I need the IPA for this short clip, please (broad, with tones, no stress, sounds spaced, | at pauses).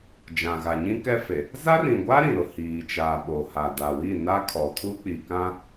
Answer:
d͡ʒ ã˨ ɣ a˨ ɲ ĩ˦ k ɛ˦ f e˨ | z a˦ r ĩ˨ ɡʷ a˦ ɾ ĩ˨ ɾ ʊ˨ h iː˨ t͡ʃ aː˨ ɓ oː˨ h a˨ d a˨ w i˦˨ n a˦ kʰ ɔ˨ tʰ u˦ k͡p i˨ k ã˦